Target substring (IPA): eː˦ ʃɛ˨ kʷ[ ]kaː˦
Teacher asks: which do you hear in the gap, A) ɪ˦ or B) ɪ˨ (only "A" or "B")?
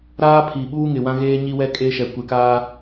B